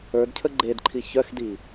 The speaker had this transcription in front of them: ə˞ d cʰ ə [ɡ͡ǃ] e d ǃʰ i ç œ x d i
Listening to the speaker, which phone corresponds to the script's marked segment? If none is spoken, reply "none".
ɡ͡ǃ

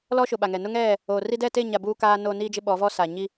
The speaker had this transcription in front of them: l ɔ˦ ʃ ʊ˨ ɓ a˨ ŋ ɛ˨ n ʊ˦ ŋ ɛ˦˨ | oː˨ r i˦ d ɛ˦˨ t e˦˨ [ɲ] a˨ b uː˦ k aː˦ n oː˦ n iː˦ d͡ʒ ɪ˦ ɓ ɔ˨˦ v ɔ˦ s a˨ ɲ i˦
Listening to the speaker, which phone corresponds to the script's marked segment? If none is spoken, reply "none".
ɲ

